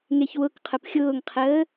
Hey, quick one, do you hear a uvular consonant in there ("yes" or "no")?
yes